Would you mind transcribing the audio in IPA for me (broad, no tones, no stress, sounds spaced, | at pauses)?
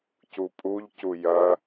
c u pʼ u ʎ c u j ɐ